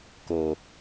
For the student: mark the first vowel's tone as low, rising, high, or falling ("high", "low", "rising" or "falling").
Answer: low